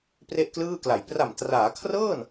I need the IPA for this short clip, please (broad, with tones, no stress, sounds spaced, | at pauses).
p r e˥˩ ʔ k l ɯː˥˩ k l a˨˩ j p r a˨˩ m t r aː˩˦ kʰ r ɤː˥˩ n